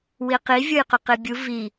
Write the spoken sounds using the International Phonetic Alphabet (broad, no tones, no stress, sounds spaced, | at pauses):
w i q i vʲ o j q ʊ q i bʲ u v i